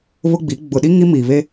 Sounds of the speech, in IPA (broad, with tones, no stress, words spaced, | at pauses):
βʊ˦ɡ͡bi˨˦ ɡ͡bʊ˨ɗi˦ ŋi˦miː˨βe˦